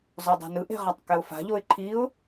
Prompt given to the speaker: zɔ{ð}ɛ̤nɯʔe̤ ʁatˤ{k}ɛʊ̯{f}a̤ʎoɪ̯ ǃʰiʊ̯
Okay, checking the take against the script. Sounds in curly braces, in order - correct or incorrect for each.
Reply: incorrect: dˤ, correct, correct

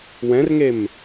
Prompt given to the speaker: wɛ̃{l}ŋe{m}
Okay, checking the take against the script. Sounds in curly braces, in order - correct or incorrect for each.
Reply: incorrect: r, correct

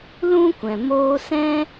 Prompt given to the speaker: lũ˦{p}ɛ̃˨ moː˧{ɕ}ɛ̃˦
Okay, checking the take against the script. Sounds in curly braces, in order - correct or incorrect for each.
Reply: incorrect: kʷ, incorrect: s

